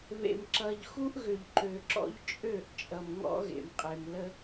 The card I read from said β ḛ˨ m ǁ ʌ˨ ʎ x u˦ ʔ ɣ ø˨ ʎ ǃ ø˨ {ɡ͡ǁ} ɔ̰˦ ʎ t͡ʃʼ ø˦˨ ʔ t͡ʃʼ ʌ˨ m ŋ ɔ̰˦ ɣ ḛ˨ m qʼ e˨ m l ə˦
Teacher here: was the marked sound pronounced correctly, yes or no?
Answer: no